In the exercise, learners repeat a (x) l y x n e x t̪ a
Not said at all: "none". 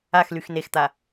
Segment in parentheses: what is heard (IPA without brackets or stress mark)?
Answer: x